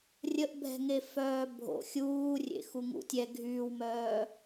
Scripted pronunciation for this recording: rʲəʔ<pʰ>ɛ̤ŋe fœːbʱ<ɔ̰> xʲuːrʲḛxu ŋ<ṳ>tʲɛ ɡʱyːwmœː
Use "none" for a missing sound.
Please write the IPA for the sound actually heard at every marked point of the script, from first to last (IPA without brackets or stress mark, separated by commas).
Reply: bʱ, o̰, ṵ